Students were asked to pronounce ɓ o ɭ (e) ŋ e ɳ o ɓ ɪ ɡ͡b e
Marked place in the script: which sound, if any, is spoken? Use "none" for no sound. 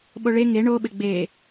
e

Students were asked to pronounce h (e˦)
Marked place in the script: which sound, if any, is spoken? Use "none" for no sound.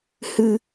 ɨ˦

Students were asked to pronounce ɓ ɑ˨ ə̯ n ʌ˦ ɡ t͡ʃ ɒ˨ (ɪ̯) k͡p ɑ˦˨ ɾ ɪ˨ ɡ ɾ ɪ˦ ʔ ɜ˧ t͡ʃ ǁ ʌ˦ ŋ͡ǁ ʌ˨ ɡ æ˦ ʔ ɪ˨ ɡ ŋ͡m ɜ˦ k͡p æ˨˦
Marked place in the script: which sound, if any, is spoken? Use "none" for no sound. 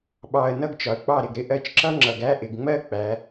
ə̯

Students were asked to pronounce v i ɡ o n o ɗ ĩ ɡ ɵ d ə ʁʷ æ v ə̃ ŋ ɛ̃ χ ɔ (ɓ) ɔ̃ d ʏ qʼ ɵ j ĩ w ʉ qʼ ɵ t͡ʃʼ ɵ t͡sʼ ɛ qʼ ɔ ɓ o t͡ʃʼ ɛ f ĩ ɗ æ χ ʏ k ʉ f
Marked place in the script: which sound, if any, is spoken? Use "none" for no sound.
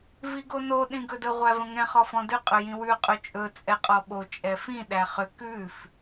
f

